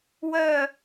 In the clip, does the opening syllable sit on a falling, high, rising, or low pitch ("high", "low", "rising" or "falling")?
falling